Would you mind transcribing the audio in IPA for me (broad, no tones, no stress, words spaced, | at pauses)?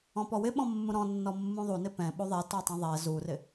ɔ̃pɔwɪɓɔ̃ mːũɾɔ̃nːɔ mːũðˤunɪ pɛ̃ ɓuðˤɛ tɔtˤɛ̃ðˤɛ zurɪ